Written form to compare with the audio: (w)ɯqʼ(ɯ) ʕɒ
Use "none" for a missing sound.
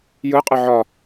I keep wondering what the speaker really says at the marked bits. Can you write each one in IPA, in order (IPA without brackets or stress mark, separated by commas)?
j, ɯ